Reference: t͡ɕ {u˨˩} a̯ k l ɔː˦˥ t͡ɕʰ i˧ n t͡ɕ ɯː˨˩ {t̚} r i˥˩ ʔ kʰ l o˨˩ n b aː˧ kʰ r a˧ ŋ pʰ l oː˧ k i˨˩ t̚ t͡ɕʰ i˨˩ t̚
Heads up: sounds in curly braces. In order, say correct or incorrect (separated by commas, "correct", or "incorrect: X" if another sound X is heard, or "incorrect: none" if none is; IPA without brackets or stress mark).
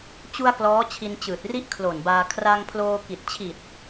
incorrect: u˧, correct